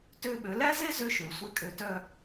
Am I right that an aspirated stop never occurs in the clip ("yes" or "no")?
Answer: yes